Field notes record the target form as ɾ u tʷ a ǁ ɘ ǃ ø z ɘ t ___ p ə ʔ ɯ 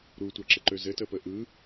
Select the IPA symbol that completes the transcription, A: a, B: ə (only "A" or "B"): B